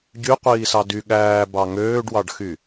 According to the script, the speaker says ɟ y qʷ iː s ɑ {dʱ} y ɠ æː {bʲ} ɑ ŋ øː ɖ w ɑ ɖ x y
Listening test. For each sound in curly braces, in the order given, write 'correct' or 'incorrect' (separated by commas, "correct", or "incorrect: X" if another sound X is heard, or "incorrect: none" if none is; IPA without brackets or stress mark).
incorrect: d, incorrect: b